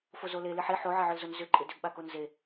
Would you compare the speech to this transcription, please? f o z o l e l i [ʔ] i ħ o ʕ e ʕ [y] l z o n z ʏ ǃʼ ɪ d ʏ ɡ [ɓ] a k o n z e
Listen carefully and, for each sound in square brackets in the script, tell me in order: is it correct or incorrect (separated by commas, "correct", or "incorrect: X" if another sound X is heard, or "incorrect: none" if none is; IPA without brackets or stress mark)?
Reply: incorrect: ħ, incorrect: ʏ, correct